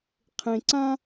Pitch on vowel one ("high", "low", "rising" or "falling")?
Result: low